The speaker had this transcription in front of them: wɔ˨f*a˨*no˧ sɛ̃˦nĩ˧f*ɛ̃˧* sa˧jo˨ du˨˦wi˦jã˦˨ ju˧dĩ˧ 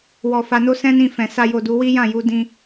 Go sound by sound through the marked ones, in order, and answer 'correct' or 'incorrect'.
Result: correct, incorrect: ɛ̃˨

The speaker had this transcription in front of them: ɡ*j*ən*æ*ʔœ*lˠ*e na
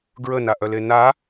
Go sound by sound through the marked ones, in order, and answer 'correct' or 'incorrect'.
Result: incorrect: ɹ, incorrect: a, incorrect: l

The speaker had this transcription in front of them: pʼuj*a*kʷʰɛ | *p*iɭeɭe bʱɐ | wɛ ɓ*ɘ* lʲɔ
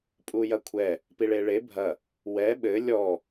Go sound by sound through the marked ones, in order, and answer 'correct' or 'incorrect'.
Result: incorrect: ɐ, correct, correct

